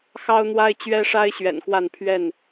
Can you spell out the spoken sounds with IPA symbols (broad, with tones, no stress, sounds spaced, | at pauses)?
x ɑ˦ ʊ̯ n̪ w a˦ ɪ̯ t͡ɕ ɥ ɛ˦ ʂ a˦ ɪ̯ ɕ ɥ ɛ̰˨˩ n k w a˥˨ n pʰ ɥ ɛ˥˨ n